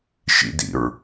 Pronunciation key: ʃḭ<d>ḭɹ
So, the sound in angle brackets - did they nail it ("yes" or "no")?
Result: yes